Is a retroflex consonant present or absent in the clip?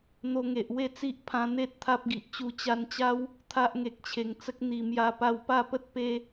absent